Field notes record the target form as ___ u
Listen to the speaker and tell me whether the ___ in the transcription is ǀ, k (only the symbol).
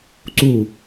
ǀ